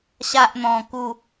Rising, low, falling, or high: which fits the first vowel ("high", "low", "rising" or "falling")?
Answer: high